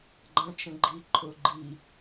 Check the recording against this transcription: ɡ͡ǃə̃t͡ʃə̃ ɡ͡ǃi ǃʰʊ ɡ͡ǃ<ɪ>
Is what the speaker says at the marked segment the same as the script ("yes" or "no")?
no